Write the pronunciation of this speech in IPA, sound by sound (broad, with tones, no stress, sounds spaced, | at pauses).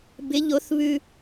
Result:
b ɪ˨˦ ʎ o˨˦ θ β ʉ˦